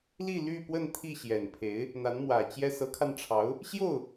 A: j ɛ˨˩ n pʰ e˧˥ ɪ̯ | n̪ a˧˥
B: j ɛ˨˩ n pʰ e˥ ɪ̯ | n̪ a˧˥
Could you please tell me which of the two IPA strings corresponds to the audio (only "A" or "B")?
A